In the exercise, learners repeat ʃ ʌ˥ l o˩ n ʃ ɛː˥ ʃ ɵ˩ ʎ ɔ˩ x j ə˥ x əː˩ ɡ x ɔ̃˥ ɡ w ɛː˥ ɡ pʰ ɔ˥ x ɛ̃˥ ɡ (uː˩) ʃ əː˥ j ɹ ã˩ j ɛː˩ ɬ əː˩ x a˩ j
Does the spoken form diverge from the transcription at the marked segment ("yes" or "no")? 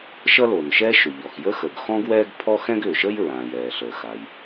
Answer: yes